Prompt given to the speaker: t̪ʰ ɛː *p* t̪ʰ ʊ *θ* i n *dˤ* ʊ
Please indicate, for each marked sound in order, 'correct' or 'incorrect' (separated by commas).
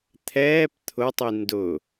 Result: correct, incorrect, incorrect